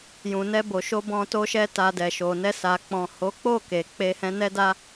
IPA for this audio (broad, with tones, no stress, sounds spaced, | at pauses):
j ũ˨ n ɛ˧ b o˨ ʃ o˧ b ɔ̃˧ t o˧ ʃ ɛ˧ t a˨ d ɛ˨ ʃ o˨ n ɛ˧ s a˨ k͡p ɔ̃˨ h o˨˦ k͡p o˦˨ k e˨ k͡p e˧ h ɛ̃˧ n ɛ˦ d a˦